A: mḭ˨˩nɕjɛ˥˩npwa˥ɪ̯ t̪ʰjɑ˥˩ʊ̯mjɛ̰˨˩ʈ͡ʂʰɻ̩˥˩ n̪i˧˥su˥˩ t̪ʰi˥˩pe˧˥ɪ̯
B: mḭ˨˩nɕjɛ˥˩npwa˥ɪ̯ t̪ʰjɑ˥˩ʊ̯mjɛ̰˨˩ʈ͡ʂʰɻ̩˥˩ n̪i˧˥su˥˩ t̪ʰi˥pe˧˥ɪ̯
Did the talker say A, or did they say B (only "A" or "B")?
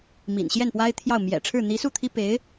B